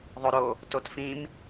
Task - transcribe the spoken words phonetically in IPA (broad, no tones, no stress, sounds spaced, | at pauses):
ðˤ o ɾ o | t o t f ĩ m